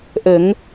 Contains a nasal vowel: no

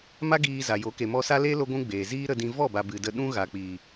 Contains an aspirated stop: no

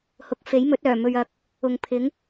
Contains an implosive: no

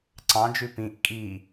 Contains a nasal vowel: yes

